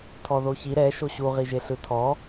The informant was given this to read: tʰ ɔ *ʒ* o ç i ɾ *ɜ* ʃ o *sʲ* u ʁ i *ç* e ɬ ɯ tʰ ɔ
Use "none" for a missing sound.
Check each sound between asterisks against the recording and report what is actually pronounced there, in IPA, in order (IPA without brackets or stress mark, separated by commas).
ð, ɛ, ɕ, ʒ